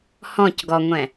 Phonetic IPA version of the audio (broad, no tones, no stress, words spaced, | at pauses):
hɔ̃cɡɔŋʷɛ̃